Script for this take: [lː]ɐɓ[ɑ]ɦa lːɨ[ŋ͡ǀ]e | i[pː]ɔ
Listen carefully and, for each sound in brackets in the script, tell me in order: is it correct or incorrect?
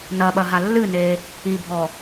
incorrect: n, incorrect: ɐ, incorrect: n, incorrect: bʱ

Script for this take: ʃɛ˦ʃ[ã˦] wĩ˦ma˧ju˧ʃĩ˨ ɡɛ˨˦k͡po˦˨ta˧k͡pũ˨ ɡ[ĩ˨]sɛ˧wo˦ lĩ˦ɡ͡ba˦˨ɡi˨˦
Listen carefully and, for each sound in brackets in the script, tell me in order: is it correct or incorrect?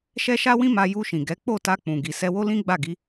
incorrect: a˦, incorrect: i˨

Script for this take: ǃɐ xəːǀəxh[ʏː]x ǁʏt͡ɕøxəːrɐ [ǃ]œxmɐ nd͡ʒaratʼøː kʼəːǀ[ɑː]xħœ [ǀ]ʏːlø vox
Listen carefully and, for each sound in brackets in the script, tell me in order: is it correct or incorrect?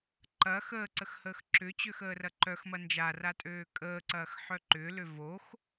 incorrect: əː, correct, incorrect: ɐː, incorrect: ǃ

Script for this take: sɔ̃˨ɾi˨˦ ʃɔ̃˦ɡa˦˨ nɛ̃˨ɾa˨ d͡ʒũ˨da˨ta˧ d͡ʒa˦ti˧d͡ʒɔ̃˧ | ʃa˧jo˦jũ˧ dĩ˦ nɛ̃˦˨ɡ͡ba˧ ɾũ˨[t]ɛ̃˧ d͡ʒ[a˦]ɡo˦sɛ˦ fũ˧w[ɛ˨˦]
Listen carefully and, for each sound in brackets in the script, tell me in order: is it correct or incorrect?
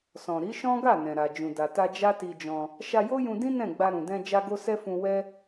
incorrect: d, correct, incorrect: ɛ˦

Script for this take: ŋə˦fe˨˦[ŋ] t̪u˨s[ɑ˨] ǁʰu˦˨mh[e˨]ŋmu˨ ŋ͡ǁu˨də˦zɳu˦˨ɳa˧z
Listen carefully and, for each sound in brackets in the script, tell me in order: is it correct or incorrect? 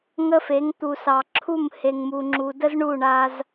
correct, correct, correct

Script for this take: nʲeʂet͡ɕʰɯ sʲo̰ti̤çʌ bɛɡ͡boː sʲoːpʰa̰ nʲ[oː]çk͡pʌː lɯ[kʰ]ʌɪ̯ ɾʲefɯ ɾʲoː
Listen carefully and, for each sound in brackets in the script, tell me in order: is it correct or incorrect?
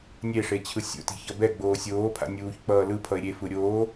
incorrect: uː, incorrect: pʰ

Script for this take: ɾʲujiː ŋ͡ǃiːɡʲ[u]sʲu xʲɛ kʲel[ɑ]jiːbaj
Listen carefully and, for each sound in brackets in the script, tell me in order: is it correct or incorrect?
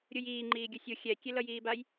correct, incorrect: ʌ

